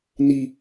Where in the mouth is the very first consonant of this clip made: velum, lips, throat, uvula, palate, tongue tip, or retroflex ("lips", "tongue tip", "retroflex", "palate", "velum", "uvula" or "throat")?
tongue tip